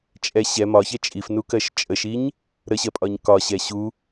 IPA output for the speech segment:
t͡ʃʼ ɛ ɕ ɛ m ɒ ç ɛ t͡ʃʼ i f n u k ɜ ʃ t͡ʃʼ ə ʃ i ɲ | ɾ ə ɕ ɜ pʼ ɒ ɲ k ɒ ɕ ɛ ɕ u

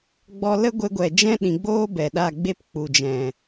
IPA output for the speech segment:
ɡ͡b ɔ˧ l ə˦ ɡʷ e˧ ɡʷ ɛ˨ d͡ʒ ɛ̃˦ ɗ ĩ˨ ɡ͡b oː˦ b ɛ˨ ɗ a˦˨ ɡ͡b e˦ p k͡p u˨ d͡ʒ ɛ̃˨

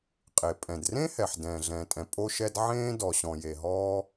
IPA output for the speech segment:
qʼ e˩ pʼ ɛ̃˩ d r ẽ˥ h ɛ˩ ħ d ɛ̃ː˩ ɮ ɛ̃ː˩ tʼ ɛ̃˩ pʼ o˥ ʃ ɛ˥ d ʕ ẽː˥ d ɔ˩ ɕ ɔ̃˩ j e˩ ɦ ɔː˥

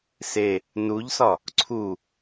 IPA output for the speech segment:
s e | n u ʎ s ɒ | ǀʰ u

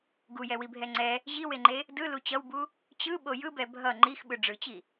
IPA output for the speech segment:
ɡ u j ɛ w i bʱ ɛ ŋ͡ǀ ɛ | ʑ i w e ŋ͡ǃ e | d ɯ l u t͡ɕ ʌ w b u | t͡ɕ ɯ ɓ o j ɯ b ɛ bʱ ʌ ŋ͡ǃ i x ɓ ɯ ɖ͡ʐ ɯ t͡ɕ i

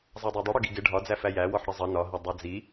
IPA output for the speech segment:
zˤ ɑ dˤ ɜ dˤ ʊ ɽ ʊ ɡ i ɡ ɪ ɖʱ ɒ d͡z æ f æ j æ w ɔ ħ ɽ ə zˤ ʌ n ɒ ɦ ə dˤ ɑ d͡z i

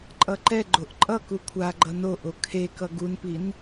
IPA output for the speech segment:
ǃʼ ʌ ǃ ɛ ɡ͡ǃ o ʔ ǃʼ ʌ k u kʷʰ a ɡ͡ǃ ʌ n o ʔ o kʰ e k ʌ ɡ u n p i n

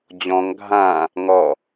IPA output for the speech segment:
d͡ʑ ɔ̃ ŋ ɡʱ ã | ŋ ɔ

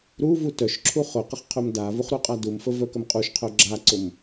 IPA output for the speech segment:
ɾ u v u t œ ʃ ǁʰ u χ ʊ q ə χ qʰ œ m d a v u χ ɾ u qʼ a d u m f ə v œ k ə m qʼ u ʃ qʰ œ ɡ͡ǁ a ǀ ʊ m

